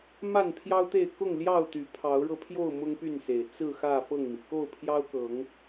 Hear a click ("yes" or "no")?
no